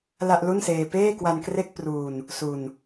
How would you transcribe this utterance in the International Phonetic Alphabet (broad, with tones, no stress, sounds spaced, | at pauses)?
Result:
l a˥˩ ʔ l u˥˩ n s eː˧ p eː˥˩ k w a˧ n k r e˥˩ k̚ p r uː˧ n | s u˧ n